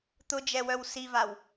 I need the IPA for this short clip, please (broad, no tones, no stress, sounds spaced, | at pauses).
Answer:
t̪ ʊ d͡ʒ ɛ w œ w s i v a w